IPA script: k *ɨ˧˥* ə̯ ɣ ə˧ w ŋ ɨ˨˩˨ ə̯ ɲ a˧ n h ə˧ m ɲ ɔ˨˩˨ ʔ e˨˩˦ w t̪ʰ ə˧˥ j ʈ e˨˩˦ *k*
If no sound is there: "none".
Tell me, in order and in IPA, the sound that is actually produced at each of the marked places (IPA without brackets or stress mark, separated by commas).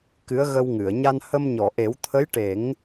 ɨ˧˥, ŋ